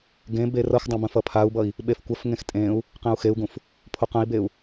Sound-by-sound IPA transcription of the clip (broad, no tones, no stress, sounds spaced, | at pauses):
ɡ ẽ b e r ʌ x dˤ ə̃ b ə̃ f ʌ pʰ a u̯ b ʌ i̯ | ɓ e f kʷ ə f ŋ ẽ x tʼ ẽ u̯ | q ẽ u̯ x e u̯ ɡ ũ f | pʰ o q ə̃ i̯ b e u̯